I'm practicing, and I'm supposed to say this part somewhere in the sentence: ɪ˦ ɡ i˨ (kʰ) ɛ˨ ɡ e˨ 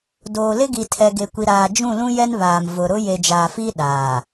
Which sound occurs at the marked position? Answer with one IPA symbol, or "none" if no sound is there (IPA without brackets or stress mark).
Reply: tʰ